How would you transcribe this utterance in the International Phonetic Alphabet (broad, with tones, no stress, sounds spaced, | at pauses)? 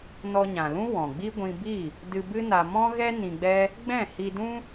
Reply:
n ɔ˧ ɲ ã˨ l ũ˦ w ɔ̃˨ ɡ͡b i˦ ɡʷ ĩ˧ b i˦˨ | d ɨ˧ b ɨ˦ n a˧ m ɔ̃˦ ɣ ɛ˦ n ĩ˧ ɡ͡b ɛ˦ | ɡ͡b ɛ̃˦˨ h i˧ d ũ˦